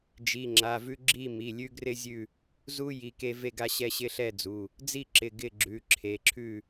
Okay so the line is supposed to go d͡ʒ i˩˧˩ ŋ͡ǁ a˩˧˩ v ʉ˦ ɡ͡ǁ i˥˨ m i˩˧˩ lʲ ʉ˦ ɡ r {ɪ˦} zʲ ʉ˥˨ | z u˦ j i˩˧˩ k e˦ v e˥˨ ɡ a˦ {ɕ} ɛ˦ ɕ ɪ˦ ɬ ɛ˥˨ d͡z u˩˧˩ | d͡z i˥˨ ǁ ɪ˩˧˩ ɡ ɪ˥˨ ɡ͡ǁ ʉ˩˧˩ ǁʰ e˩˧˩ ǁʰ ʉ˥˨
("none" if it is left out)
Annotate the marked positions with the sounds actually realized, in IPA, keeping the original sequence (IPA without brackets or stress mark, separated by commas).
ɪ˦, ɕ